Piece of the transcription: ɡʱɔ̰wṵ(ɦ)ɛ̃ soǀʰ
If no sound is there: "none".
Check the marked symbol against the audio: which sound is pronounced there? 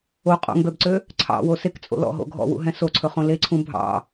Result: ɦ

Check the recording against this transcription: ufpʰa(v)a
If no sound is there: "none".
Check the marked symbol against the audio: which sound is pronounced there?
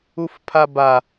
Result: b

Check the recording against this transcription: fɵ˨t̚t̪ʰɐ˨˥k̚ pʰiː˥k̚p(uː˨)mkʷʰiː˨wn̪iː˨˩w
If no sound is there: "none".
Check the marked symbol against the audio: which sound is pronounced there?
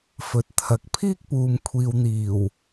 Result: uː˨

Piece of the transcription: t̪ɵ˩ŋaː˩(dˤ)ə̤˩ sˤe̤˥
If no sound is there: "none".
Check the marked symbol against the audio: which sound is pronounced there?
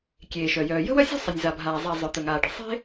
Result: ɖ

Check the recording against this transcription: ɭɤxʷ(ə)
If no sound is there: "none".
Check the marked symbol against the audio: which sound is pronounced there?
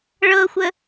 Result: ə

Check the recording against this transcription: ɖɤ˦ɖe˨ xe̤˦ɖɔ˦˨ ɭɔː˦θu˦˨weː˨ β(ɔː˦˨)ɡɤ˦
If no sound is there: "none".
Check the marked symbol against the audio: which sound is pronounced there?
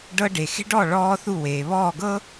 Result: ɔː˦˨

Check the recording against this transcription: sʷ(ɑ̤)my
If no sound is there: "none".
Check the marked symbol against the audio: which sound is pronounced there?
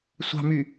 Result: ɑ̤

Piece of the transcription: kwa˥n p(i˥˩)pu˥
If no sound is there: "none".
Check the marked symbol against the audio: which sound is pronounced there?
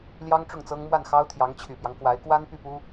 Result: y˥˩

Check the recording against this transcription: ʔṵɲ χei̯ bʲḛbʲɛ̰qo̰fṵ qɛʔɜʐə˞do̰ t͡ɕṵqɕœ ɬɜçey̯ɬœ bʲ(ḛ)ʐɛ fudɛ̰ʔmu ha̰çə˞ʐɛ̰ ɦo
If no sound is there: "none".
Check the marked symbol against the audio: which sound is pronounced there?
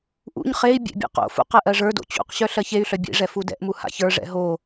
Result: ḛ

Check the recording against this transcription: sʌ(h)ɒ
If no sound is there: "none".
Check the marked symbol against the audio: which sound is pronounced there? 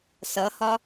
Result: h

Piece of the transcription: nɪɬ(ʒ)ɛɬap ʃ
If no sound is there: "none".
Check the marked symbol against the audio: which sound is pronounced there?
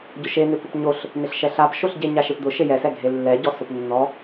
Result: ʃ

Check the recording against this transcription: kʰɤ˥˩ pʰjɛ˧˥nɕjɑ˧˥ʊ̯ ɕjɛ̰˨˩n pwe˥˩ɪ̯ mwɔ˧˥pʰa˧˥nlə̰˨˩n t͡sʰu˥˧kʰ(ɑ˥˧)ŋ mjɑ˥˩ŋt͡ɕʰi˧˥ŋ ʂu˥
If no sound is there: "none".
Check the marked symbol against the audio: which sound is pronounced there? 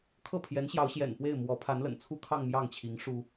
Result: ɑ˥˧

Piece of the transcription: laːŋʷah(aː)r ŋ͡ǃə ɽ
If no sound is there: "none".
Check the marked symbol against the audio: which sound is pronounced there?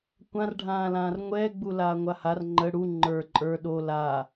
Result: a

